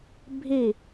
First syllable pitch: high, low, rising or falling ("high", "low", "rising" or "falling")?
falling